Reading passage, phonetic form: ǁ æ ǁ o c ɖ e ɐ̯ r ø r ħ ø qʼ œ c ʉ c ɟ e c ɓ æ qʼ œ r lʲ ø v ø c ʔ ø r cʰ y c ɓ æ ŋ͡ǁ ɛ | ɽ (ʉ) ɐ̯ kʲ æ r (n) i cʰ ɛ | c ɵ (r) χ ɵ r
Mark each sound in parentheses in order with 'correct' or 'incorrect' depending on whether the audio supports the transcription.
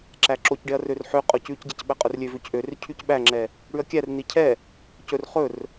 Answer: correct, correct, correct

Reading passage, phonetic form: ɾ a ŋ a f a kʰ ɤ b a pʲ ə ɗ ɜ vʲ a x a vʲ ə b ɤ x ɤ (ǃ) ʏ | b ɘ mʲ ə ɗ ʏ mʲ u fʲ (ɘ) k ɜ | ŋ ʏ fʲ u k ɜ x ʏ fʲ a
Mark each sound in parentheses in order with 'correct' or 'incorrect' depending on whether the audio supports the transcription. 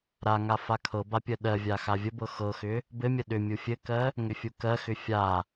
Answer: incorrect: x, correct

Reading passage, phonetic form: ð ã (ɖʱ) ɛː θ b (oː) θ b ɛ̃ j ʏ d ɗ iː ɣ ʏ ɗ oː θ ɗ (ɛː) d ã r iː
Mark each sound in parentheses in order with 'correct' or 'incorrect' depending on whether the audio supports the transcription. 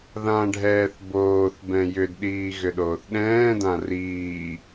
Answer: correct, correct, incorrect: ɛ̃ː

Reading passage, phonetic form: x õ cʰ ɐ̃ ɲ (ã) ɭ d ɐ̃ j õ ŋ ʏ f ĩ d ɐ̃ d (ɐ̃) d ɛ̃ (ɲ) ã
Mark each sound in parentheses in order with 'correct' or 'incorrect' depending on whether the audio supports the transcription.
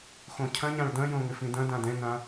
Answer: correct, incorrect: ã, incorrect: n

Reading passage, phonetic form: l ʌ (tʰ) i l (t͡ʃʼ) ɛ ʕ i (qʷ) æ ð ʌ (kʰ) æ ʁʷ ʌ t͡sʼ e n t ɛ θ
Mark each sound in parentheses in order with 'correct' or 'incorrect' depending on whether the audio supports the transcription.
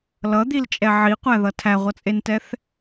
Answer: incorrect: d̪, correct, correct, incorrect: tʰ

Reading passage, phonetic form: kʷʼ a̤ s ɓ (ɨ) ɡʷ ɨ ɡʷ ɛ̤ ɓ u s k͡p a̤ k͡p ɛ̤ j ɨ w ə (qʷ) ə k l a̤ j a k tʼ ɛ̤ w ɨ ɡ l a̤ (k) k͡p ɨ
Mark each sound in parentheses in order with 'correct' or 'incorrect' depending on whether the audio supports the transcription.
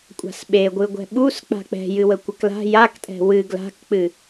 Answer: incorrect: e, incorrect: kʷ, correct

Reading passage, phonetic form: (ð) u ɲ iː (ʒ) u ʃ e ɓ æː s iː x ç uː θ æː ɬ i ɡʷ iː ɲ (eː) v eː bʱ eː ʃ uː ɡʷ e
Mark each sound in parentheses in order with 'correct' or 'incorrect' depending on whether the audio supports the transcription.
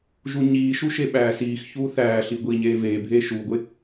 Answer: incorrect: ʒ, incorrect: ʃ, correct

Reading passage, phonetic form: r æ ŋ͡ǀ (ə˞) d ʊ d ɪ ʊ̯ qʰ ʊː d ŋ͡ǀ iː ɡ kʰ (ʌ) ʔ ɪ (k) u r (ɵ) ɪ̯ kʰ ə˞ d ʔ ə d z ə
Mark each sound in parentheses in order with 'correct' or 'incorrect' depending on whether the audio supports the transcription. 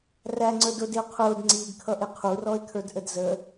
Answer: correct, correct, incorrect: qʰ, incorrect: ɔ

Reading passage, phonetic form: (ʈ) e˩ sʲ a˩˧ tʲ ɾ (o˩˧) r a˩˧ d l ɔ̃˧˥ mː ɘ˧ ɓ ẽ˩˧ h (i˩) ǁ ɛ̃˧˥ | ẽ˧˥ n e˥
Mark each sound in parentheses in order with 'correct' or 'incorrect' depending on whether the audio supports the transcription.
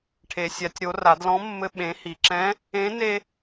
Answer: incorrect: ʈʰ, correct, correct

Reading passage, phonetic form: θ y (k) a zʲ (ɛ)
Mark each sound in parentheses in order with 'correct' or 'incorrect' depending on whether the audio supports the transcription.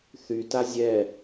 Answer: incorrect: t, correct

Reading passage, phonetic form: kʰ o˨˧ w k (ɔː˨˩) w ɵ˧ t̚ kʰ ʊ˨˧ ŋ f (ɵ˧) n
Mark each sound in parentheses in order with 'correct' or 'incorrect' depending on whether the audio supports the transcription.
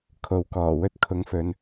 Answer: correct, incorrect: ɵ˨˧

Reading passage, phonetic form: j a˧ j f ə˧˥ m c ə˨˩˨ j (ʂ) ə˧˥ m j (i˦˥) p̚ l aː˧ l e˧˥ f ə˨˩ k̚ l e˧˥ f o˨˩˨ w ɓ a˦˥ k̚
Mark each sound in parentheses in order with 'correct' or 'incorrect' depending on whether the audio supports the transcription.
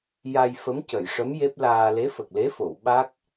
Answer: correct, incorrect: e˦˥

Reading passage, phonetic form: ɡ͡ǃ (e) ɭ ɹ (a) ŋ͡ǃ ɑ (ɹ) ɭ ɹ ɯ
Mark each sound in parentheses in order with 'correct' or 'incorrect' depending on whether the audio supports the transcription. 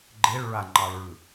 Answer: correct, correct, incorrect: none

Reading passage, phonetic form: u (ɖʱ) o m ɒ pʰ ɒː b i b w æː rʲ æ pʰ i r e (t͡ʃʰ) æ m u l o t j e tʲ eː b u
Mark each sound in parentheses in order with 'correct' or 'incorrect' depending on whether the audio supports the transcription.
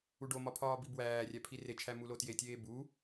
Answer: incorrect: ɖ, correct

